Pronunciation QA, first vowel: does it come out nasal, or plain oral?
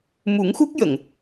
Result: oral